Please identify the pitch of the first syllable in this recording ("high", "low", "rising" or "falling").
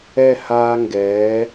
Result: falling